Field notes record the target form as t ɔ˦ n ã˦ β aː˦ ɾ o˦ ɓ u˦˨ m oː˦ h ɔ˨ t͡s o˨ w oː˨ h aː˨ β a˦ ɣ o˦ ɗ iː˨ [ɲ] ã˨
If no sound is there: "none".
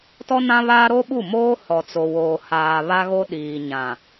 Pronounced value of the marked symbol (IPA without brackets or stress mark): ɲ